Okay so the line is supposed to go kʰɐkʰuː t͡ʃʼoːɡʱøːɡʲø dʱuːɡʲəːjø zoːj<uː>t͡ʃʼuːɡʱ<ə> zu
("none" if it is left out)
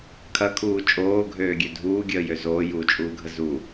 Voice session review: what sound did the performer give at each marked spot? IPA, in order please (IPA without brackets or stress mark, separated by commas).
uː, ə